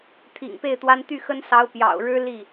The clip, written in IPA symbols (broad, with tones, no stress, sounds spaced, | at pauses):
t̪ʰ ḭ˨˩ ŋ p e˥˩ ɪ̯ t̪ w a˥ n t̪ y˥˩ x ə˥ n s ɑ˧˥ ʊ̯ p j ɑ̰˨˩ ʊ̯ ɻ ɻ̩˥ l i˥˩